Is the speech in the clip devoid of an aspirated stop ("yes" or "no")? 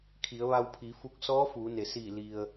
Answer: no